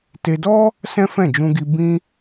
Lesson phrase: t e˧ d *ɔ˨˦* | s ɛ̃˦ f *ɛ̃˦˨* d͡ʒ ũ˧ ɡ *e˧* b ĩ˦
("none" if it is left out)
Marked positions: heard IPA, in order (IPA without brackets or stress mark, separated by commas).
ɔ˦, ɛ̃˦˨, i˧